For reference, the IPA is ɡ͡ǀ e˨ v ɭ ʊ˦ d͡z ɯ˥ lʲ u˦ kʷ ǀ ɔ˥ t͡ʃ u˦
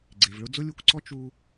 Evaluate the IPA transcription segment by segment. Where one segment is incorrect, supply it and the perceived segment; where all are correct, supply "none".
ɯ˥ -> ʊ˥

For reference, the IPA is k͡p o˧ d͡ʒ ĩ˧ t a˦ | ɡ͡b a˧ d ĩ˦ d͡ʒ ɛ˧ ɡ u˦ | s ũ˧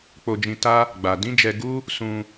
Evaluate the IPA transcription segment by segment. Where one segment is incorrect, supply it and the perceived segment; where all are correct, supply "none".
none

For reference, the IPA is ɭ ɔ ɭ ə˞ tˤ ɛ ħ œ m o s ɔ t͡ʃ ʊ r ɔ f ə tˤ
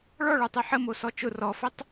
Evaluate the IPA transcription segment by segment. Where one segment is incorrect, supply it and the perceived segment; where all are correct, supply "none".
œ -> ə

